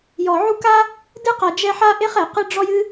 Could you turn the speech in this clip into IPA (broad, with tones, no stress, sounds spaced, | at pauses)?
j ɔ˩ ʕ u˦ k a˥ | d ɨ˥ q a˨ d͡ʒ ɛ˦ ħ a˥ ʔ e˥ χ ɛ˩ q ɨ˥ ɖ͡ʐ ɔ˥ j ɨ˥